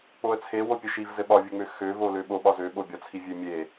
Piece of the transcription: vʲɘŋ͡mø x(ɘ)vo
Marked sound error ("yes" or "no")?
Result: yes